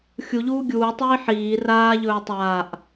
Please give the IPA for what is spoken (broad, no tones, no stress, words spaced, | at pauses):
xʲuʎuː ɡʲuːtˤiː ħiː raːʎɵː tˤaːʔ